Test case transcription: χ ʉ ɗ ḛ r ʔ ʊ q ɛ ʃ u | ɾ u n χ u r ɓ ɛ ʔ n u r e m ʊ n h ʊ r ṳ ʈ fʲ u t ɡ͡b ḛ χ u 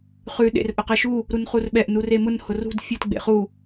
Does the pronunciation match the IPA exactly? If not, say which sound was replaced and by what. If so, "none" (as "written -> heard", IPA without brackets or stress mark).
ʈ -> d